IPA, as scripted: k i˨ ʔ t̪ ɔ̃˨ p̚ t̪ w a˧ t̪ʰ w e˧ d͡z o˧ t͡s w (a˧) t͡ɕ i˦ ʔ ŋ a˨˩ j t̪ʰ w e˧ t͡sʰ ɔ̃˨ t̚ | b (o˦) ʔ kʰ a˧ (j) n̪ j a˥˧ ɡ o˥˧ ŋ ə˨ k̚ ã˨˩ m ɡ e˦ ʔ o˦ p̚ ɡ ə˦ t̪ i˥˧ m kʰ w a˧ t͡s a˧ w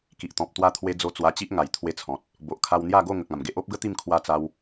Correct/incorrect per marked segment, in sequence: correct, incorrect, incorrect

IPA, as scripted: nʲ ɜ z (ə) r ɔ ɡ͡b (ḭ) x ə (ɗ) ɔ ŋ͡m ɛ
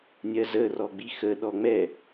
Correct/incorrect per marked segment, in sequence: correct, incorrect, correct

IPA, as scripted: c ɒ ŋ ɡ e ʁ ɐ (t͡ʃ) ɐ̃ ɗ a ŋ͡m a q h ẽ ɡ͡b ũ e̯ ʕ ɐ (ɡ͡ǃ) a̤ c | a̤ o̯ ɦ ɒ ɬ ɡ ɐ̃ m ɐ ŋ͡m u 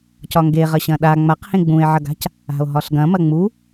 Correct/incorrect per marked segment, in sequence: incorrect, incorrect

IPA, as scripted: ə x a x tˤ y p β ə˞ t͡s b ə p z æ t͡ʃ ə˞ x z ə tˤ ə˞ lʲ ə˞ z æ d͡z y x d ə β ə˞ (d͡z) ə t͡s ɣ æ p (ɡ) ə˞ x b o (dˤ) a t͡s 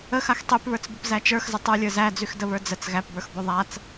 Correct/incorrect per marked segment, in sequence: correct, incorrect, incorrect

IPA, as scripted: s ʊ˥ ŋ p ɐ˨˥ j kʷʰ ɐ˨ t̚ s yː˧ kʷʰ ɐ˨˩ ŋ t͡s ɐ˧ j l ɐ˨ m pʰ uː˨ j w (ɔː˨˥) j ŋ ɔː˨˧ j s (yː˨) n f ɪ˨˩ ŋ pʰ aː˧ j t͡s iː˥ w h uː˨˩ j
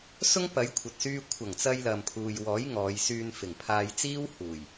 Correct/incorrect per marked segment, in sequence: correct, incorrect

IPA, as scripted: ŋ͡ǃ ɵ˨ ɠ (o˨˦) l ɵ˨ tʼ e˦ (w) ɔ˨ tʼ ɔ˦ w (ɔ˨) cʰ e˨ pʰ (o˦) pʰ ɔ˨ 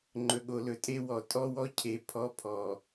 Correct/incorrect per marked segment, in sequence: incorrect, correct, incorrect, incorrect

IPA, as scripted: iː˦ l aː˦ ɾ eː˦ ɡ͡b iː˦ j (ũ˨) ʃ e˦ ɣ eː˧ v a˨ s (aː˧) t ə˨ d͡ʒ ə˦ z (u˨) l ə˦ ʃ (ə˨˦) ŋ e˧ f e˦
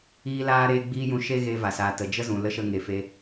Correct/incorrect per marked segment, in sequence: incorrect, incorrect, incorrect, incorrect

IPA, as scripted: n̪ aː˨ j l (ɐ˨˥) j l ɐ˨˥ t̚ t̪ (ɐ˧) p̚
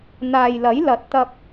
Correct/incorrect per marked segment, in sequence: correct, correct

